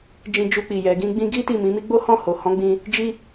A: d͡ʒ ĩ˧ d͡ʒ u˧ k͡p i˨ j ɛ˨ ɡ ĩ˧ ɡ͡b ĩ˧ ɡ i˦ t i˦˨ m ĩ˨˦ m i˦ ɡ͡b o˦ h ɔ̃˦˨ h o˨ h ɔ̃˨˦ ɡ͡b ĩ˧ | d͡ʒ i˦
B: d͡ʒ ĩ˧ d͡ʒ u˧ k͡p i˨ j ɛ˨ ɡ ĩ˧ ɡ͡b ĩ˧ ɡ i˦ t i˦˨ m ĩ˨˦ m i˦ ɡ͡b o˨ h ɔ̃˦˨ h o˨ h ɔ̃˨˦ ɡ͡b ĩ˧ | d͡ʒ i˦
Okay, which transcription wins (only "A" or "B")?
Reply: A